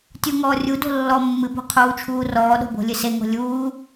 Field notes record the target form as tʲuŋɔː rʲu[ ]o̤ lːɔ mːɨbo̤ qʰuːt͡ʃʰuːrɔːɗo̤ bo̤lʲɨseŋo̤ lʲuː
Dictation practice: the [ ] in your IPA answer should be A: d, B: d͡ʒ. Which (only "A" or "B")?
A